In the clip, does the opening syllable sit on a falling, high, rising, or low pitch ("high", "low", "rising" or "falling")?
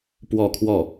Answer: falling